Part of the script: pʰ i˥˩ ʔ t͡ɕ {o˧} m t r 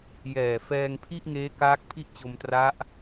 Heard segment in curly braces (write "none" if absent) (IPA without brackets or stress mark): o˧